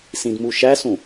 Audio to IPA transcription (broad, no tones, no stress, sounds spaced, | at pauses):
s ĩ d m u ʃ æ s ũ